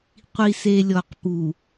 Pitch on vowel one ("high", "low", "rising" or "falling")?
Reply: low